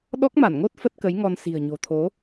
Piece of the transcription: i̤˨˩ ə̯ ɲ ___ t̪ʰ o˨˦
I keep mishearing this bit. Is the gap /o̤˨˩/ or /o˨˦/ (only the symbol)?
o̤˨˩